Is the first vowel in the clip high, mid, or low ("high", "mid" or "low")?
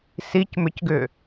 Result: high